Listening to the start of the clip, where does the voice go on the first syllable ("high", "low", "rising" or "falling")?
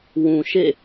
low